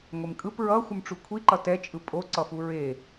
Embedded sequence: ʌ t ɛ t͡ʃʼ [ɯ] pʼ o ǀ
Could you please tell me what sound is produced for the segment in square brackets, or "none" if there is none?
ɯ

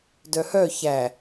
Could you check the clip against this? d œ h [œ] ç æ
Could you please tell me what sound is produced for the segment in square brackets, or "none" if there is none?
œ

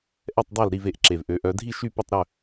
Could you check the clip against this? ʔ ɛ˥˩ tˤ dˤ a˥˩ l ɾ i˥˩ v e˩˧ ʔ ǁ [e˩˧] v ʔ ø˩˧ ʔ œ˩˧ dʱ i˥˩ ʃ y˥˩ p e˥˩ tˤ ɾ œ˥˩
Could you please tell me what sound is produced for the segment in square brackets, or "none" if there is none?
e˩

